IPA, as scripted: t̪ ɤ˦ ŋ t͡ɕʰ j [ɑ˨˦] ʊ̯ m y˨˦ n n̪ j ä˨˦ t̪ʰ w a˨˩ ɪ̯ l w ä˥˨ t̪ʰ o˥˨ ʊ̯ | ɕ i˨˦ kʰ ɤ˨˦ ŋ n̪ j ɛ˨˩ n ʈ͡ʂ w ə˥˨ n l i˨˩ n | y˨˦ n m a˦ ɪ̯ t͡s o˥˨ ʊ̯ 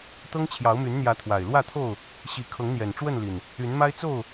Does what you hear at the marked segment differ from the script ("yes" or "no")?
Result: no